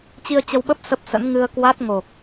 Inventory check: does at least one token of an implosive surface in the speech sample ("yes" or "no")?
yes